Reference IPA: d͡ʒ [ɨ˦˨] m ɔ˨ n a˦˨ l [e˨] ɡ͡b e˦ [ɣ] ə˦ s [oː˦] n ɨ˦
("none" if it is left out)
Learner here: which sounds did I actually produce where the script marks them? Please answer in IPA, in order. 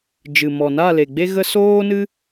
ɨ˨, e˨, ɣ, oː˦

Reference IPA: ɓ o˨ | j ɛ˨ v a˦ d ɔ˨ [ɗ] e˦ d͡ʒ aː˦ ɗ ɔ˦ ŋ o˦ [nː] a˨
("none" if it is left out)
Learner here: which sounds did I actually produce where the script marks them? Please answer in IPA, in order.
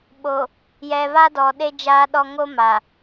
ɗ, m

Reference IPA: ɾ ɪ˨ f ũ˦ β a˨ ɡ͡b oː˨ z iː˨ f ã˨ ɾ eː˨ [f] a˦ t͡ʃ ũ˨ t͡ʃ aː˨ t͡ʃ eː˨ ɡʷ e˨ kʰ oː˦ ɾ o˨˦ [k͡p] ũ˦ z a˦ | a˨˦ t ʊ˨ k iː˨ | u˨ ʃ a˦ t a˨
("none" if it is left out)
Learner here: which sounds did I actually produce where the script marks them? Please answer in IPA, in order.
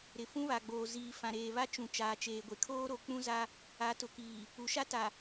β, k͡p

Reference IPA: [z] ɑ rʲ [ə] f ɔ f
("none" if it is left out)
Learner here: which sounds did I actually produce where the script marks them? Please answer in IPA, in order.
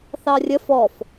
θ, ə

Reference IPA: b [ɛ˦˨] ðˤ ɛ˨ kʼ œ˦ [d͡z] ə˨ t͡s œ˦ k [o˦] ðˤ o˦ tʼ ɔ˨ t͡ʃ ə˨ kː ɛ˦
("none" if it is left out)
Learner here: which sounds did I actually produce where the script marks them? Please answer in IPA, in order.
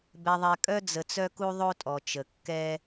ɛ˨, d͡z, u˦

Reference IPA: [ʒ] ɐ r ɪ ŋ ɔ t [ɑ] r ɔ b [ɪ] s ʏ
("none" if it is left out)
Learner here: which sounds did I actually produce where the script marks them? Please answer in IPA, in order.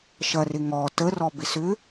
ʃ, ə, ɪ

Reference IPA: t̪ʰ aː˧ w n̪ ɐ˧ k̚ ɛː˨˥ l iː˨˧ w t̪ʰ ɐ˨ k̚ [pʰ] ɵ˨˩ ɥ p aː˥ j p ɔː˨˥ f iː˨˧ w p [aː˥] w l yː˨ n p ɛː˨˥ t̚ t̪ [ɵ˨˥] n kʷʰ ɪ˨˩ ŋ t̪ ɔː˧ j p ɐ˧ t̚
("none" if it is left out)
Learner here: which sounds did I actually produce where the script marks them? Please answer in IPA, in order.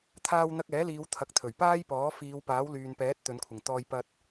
t̪ʰ, aː˨˥, ɵ˨˧

